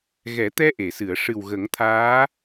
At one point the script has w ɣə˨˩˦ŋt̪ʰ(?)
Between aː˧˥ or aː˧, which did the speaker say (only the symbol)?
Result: aː˧˥